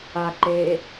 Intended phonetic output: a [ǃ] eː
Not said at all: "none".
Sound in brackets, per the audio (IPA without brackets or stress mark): ǃ